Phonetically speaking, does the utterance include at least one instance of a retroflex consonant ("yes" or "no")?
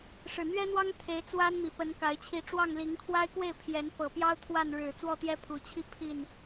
yes